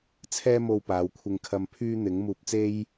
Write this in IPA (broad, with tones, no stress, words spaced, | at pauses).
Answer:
t͡sʰɛː˥mo˧w paː˨˧w kʷʰɪ˧ŋkʰɐ˧mpʰyː˥ n̪ɪ˨˥ŋmuː˧p̚t͡se˥j